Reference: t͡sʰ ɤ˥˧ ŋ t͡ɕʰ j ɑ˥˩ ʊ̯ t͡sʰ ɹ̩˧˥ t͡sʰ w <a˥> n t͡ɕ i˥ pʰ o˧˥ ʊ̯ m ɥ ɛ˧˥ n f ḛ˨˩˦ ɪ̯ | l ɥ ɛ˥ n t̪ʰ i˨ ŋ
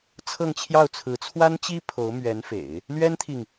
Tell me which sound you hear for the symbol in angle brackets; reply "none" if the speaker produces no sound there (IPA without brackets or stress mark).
a˥